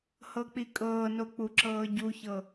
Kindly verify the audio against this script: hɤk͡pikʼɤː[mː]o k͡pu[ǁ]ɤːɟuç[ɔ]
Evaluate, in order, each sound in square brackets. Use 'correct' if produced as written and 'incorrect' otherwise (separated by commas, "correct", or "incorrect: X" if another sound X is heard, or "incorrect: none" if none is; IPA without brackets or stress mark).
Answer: incorrect: n, correct, incorrect: ɤ